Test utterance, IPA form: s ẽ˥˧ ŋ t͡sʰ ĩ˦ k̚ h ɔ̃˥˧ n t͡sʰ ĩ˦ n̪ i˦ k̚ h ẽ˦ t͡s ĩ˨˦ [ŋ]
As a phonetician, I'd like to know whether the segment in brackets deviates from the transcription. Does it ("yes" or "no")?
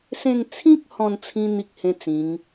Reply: no